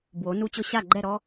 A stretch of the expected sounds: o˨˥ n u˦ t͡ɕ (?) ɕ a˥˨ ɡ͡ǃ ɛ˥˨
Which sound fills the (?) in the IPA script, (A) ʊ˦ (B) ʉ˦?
A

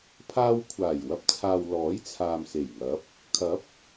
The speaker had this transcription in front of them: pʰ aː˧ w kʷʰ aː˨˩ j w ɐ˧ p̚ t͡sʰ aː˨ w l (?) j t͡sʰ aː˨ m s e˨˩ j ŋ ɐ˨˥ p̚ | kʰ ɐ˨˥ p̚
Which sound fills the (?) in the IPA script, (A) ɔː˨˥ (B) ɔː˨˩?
A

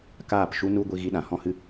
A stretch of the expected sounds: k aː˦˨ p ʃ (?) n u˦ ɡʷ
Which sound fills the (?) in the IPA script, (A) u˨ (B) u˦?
B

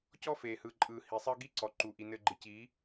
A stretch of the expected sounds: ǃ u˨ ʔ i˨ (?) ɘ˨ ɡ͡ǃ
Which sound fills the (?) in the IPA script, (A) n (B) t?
A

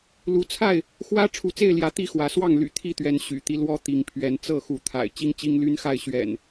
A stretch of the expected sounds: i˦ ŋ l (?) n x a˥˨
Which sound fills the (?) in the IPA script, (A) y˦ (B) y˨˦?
A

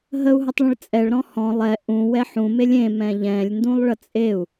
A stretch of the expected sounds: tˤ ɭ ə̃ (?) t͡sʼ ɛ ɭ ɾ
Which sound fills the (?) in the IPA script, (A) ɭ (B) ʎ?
A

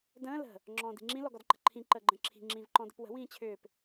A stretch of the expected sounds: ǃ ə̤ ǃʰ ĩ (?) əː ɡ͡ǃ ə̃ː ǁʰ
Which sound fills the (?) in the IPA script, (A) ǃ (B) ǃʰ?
A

